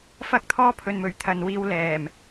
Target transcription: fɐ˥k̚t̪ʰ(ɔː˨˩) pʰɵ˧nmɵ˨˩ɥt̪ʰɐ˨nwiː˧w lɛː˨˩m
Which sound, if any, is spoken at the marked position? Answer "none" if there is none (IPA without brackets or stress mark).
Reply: ɔː˥